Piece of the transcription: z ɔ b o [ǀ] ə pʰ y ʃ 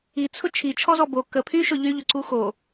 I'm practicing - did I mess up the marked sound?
yes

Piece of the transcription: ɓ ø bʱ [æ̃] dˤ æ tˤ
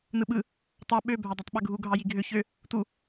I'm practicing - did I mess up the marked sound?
yes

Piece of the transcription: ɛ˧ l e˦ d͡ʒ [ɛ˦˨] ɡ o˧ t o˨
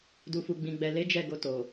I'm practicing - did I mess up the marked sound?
no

